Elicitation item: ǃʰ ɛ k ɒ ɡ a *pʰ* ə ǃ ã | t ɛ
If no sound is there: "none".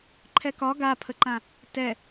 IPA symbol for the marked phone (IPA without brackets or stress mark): pʰ